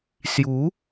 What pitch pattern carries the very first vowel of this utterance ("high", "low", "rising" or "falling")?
rising